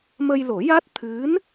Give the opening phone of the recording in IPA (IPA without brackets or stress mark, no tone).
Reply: m